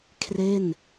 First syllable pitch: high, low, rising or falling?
falling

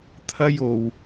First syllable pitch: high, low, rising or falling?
high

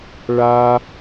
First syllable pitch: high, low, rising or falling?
high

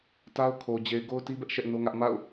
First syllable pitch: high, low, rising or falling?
high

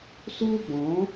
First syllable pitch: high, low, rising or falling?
high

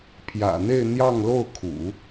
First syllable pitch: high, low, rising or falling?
low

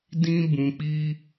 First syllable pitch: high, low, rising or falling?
high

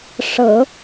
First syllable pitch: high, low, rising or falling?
low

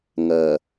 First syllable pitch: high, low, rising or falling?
low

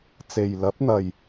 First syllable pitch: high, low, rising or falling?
low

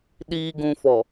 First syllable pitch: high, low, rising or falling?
low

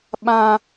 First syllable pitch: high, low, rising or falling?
high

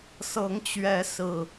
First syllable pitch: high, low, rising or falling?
rising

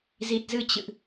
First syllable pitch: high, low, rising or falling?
low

